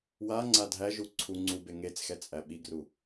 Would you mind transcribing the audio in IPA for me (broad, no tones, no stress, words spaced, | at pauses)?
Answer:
waŋ͡ǀa dʱæʒu ǀʰu ŋ͡ǀube ŋet͡sxɛ t͡sʼæɓiɡru